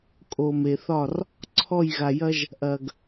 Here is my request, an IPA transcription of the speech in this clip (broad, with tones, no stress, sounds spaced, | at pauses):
kʼ o˨ m e˨ θ ɒ˦˨ r | ǀʰ ɔ˦˨ j ɣ a˨ j ɐ˦ ʒ | ʔ ɐ˨ ɡ